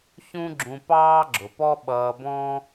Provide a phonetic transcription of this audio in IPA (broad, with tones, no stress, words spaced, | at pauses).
çũ˥ɡ͡ǁũ˧ pɑː˥ɡ͡ǁʊ˩pɔ˥ ɓʌː˧bɔ̃˥